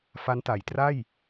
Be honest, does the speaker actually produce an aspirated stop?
no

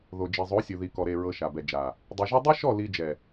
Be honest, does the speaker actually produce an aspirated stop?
no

